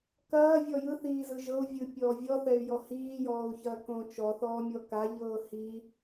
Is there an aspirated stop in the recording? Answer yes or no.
no